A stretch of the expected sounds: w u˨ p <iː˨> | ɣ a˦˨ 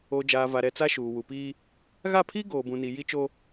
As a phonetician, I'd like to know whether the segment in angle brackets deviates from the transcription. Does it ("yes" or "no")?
yes